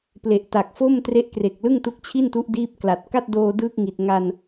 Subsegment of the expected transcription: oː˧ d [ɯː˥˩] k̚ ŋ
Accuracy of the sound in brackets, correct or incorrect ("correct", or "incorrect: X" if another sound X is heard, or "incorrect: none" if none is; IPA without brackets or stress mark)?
correct